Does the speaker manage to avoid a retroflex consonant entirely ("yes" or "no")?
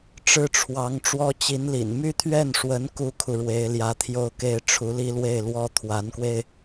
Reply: no